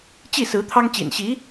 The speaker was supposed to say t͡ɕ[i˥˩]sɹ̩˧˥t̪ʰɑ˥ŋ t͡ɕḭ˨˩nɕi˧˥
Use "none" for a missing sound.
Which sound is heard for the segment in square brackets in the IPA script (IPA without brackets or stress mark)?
i˥˩